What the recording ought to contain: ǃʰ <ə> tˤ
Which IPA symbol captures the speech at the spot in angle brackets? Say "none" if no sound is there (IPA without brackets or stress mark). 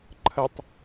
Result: ə